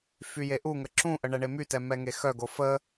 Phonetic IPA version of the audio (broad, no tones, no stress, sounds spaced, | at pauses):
f y j e ʔ u ŋ ə ǁ ũ ʔ ə ɳ ɛ ɳ e m y t ɛ m ɛ ŋ e x œ ɡ o f ə